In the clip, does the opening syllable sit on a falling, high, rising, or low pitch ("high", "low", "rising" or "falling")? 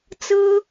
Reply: high